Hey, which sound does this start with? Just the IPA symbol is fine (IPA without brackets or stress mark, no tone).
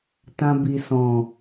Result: t